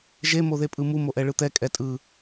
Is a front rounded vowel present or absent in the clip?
absent